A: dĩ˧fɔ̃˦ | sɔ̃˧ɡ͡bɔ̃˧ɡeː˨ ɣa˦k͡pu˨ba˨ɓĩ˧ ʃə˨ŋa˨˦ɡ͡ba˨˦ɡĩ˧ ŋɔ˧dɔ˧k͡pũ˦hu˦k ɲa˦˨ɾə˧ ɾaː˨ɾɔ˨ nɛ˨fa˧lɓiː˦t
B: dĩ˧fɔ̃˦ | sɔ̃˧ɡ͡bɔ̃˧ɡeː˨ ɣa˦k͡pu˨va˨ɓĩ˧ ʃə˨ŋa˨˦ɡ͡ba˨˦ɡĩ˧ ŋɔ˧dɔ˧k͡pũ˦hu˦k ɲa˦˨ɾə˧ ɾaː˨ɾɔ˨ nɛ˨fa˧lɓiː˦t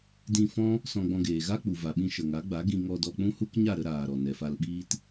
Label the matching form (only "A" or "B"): B